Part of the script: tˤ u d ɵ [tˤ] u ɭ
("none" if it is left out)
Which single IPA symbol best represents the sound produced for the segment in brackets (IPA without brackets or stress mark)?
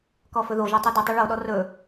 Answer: tˤ